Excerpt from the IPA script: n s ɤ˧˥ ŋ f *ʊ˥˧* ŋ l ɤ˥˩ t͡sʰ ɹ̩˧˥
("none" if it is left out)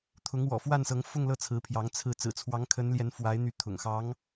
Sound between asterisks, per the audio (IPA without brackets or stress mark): ʊ˥˧